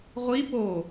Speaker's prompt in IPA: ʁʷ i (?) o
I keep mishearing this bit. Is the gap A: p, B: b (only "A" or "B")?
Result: A